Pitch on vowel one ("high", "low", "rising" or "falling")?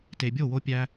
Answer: low